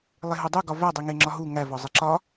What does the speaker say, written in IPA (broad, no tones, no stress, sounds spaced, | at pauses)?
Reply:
lˠ e ɦ u dˤ u ɡ ɒ v æ dˤ i ŋ e ŋ͡ǁ ɒ ɦ u ŋ æ v ɒ zˤ i ǁ ɒ